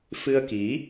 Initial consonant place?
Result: labial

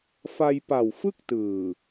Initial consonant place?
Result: labial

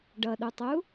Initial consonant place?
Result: retroflex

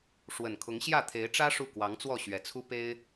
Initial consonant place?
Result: retroflex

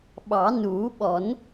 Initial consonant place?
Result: labial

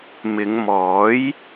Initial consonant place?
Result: labial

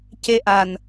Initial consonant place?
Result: palatal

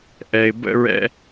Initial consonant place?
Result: glottal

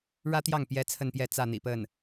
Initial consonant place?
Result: retroflex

